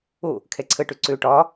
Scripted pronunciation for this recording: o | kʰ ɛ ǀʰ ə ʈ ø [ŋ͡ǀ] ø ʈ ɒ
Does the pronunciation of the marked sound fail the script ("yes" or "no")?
yes